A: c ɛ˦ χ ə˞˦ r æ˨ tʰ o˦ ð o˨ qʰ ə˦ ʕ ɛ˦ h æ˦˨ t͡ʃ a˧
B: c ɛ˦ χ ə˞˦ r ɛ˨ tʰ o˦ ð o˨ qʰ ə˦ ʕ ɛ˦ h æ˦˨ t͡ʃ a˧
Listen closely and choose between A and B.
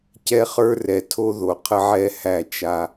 B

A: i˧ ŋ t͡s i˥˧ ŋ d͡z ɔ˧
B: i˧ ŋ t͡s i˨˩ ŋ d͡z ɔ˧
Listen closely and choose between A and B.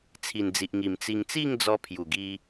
A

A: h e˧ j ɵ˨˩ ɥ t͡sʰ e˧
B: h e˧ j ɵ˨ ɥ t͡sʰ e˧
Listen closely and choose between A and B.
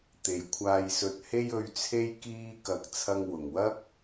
B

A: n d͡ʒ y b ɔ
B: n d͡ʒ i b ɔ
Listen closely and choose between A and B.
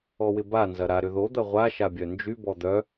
A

